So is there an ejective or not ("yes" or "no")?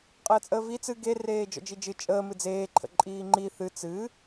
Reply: yes